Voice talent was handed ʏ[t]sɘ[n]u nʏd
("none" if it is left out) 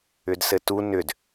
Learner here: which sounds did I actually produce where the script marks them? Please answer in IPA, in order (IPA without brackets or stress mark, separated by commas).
d, t